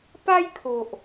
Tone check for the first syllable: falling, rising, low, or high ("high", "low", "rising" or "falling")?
high